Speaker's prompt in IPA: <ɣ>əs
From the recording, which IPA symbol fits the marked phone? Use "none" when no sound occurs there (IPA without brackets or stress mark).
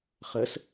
χ